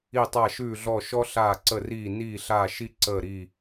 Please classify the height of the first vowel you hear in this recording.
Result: high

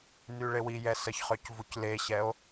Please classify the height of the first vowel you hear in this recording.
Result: high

